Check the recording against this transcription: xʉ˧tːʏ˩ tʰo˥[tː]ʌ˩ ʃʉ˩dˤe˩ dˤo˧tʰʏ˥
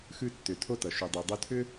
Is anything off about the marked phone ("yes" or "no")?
yes